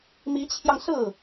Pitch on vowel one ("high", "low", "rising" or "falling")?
rising